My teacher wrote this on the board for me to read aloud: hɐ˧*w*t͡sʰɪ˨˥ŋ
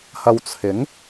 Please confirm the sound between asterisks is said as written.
yes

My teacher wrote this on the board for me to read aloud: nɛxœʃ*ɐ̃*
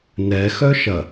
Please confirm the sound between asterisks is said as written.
no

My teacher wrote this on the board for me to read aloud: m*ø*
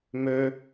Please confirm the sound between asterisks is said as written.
yes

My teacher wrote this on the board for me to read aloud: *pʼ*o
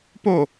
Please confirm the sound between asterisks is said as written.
no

